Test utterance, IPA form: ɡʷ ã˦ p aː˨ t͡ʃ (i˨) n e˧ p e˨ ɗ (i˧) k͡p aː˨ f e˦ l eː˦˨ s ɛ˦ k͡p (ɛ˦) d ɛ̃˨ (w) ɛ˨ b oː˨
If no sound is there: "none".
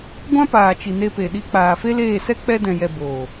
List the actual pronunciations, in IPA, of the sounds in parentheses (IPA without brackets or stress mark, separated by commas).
i˨, i˧, ɛ˧, j